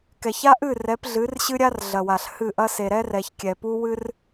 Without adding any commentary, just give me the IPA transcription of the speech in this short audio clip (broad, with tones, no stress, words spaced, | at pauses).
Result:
kɛ˨ça˦ʔɨ˦˨ rɛ˨˦pɮɨ˨˦rɕɨ˦ ɾʲa˦r ɮɐ˨wa˨ɬ hɨ˦˨ʔɐ˦ se˨ɾɛ˦rɛ˨ç kʲɛ˨pu˦ wɨ˦r